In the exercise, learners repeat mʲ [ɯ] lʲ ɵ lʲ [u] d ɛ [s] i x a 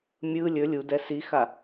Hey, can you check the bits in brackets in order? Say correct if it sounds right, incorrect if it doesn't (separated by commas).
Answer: correct, correct, correct